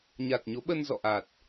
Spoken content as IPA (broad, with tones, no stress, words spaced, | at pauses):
ɲa˨˩t̚ɲo˨˦ɓə˧n zɔ̰˧˨ʔa˨˩t̚